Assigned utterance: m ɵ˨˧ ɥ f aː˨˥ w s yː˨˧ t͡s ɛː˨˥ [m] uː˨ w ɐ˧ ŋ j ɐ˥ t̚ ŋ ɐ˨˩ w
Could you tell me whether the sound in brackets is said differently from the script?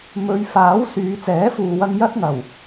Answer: yes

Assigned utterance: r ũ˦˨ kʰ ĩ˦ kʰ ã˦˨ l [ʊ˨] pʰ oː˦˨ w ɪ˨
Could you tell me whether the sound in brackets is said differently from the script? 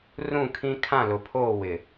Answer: no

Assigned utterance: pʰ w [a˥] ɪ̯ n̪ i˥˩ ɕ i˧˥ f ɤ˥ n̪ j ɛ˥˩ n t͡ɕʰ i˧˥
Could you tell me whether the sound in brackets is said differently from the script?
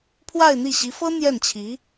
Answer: yes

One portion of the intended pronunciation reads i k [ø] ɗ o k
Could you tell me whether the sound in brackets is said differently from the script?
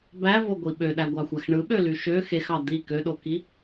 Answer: no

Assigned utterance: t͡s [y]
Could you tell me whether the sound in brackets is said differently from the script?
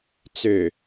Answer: yes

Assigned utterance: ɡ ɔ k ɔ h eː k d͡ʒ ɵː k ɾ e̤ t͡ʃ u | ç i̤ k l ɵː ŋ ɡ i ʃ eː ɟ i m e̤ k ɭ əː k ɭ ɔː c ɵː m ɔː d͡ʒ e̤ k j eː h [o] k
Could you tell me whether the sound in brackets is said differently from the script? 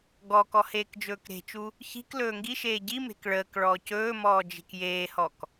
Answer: yes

